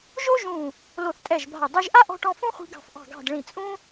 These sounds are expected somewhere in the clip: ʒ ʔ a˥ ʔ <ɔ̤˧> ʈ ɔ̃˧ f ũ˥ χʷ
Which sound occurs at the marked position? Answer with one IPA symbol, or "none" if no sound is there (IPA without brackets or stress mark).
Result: ɔ̤˧